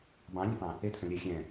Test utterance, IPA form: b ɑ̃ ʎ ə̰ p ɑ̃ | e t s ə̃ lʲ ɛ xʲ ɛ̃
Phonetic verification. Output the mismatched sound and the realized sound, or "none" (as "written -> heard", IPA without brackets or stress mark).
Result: none